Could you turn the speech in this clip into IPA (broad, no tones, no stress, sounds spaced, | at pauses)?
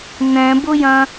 n ɛ̃ b ʊ j ɐ̃